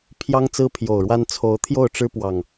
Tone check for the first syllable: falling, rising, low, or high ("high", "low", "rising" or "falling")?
high